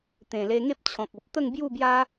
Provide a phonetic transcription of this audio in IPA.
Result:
t̪ ẽ˨˩ l e˧ ŋ e˦ p̚ t͡ɕʰ ɔ̃˨ k̚ o˨ p̚ t̪ ə˥˧ ŋ b j u˥˧ b j a˦

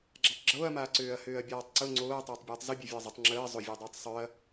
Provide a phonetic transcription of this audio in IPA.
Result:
ɡ͡ǁ a tˤ ɡ͡ǁ oː ɐ̯ m aː ǀ øː ɐ̯ h øː ɐ̯ bʲ aː tˤ ǀ ʊ ŋ͡ǀ oː ɐ̯ tˤ øː tˤ bʲ øː tˤ z ʊ bʲ œ vʲ ʊ ɐ̯ zˤ ʊ tˤ ŋ͡ǁ əː zˤ ʊ vʲ əː dˤ oː tˤ sˤ œ ɐ̯

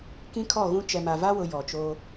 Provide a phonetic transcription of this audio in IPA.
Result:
k ĩ˦ kʰ ɔ˦˨ ɣ ũ˦ t͡ʃ ɛ˨ m a˨ v a˦ w ʊ˨ j ɔ˨ t͡ʃ o˦

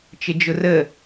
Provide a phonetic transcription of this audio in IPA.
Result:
t͡ʃ ɪ d͡ʒ ʊ r ə

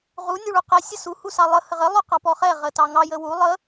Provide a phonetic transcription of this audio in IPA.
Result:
ʁ u nʲ u ɭ u q ɛ sʲ ə s u h u s ɑ lˠ ə h ə ʁ ə lˠ ʉ q ɑ p ɔ χ ɛ ʁ ə t ɑ ŋ ɑ j ə w u lˠ ə

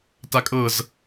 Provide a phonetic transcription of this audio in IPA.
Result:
t a kʼ ɤ z

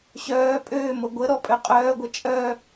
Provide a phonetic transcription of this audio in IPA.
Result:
ɕ œː pʼ øː m o ɡʷ ə ɾ ɔ pʼ ø qʼ œː ɡʷ ɐ t͡ʃʼ œ

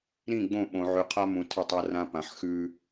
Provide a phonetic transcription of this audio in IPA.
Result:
ɾ ĩ˦˨ ɡ͡b õ˦˨ ɓ õ˨ ʕ ʉ˨ qʰ a˦ m ũ˨ tʰ ə˦˨ tˤ a˦ r ã˦ p ã˨ ħ x ʉ˦

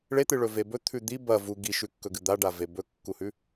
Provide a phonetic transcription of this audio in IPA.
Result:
ɭ e t̪ ɨ ɭ ɵ v e b ɵ t̪ʰ ʉ d̪ i b ɐ v u ɡ i ʃ ʉ kː ɵ ɡ ɨ d̪ a ɖ a v e b ɵ kː u h ʉ

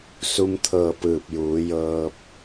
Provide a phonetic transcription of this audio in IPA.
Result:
s u˧ m t̪ʰ ɤː˧˩ p ɯː˧˩ p̚ j uː˩˧ j ɤː˧ p̚

